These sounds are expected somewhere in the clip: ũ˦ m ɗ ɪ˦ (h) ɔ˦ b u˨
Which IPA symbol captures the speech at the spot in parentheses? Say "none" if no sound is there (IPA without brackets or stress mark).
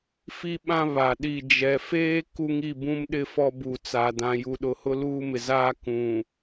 f